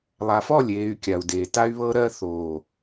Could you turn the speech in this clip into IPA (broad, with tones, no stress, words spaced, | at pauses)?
lˠa˨fɔ˦˨lʲeː˨y̯ kʲa˨u̯deː˨ ta˦y̯βɤ˦ɾɜ˦ θoː˨